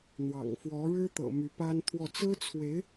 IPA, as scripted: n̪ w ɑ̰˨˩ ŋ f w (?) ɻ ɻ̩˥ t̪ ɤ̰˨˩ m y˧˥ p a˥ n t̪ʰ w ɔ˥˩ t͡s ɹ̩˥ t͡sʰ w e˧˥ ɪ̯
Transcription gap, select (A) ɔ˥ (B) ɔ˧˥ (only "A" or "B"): B